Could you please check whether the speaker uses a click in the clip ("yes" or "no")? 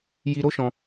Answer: no